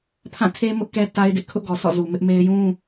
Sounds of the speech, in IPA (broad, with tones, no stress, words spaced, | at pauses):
pʰã˦˨tʰe˦ mʊ˦ʔkɛ˦ ta˦ɪ̯dɪ˦ʔ kʰʊ˦ʔɡɔ˨sɔ̰˦˨zu˨ mɪ˦ʔme˦ɪ̯ jũ˦